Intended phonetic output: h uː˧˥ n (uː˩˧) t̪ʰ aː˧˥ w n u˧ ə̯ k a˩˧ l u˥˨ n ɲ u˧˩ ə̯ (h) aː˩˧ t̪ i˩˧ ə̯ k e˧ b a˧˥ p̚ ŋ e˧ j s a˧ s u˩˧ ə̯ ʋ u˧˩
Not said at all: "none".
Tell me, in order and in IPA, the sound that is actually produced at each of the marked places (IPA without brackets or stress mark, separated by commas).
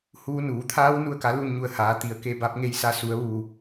uː˩˧, h